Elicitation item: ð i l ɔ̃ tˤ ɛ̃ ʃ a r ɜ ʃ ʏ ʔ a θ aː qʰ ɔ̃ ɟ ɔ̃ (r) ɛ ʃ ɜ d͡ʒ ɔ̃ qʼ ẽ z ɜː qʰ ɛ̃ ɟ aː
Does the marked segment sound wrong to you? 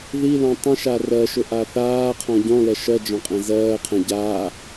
yes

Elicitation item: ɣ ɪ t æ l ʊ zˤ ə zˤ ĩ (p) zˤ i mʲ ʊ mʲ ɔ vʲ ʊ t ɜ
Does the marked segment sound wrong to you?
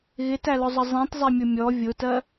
yes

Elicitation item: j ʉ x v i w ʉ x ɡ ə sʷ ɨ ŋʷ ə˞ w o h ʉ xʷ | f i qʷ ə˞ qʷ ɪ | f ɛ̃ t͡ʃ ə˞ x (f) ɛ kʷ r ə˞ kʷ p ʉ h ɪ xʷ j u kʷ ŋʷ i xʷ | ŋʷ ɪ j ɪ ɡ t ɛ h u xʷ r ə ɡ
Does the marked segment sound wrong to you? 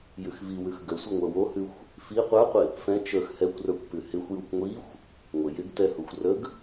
yes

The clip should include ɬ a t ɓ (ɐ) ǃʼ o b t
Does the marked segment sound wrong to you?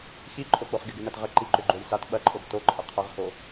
no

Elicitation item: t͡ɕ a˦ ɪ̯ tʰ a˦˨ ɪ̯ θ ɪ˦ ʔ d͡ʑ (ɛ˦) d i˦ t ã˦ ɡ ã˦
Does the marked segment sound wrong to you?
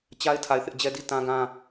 no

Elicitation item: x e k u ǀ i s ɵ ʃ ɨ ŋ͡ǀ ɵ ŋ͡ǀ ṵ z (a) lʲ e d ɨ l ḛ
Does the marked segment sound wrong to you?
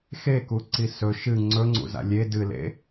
yes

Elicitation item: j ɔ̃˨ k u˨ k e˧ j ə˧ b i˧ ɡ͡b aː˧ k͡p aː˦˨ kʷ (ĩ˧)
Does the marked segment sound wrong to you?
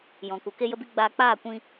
no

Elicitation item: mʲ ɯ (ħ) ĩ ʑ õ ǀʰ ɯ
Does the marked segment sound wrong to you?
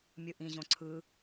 yes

